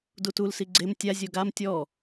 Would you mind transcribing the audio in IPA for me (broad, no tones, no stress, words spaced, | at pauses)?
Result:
dutul siɡ͡ǀem tʲa zʲoɡam tʲɔ